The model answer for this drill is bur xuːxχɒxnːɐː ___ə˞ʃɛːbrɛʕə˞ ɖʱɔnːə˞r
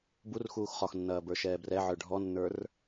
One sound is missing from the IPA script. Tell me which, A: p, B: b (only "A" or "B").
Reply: B